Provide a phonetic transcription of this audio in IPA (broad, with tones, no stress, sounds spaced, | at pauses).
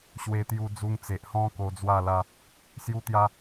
ɕ w e˧ t̪ j u˧ d͡z u˧ ŋ t͡s e˨ ʔ h ɔ̃˦ k o˧ d͡z w a˥˧ l a˦ | s j u˧ t̪ j a˧